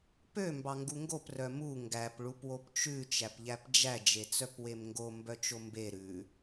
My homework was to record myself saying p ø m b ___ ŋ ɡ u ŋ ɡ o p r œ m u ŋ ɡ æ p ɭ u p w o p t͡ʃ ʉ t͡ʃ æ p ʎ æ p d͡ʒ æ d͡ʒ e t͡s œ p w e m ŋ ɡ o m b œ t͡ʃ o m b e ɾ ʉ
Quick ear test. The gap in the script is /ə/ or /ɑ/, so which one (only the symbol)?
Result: ɑ